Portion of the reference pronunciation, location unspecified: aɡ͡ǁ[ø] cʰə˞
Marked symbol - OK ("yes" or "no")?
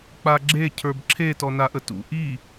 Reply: no